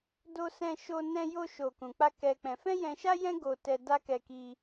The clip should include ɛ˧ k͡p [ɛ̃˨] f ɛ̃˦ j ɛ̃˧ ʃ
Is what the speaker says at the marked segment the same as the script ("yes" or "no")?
no